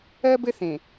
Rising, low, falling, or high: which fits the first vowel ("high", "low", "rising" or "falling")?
high